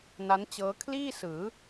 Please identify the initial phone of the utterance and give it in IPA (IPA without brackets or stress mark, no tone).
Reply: n